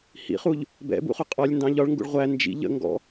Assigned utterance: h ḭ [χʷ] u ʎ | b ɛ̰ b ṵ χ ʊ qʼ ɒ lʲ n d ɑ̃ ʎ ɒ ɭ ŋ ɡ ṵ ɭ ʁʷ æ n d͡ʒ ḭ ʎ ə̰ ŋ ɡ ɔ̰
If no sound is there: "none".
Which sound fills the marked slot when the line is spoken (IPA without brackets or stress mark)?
χ